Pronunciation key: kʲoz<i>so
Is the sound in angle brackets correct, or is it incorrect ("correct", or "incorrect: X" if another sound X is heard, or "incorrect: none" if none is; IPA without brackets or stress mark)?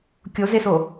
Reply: incorrect: e